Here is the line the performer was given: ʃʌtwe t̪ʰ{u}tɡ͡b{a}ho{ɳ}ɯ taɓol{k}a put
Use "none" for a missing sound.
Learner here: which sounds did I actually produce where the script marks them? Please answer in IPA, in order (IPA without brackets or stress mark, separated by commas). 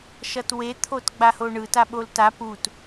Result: o, a, ɳ, t